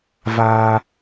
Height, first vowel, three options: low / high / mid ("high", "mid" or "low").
low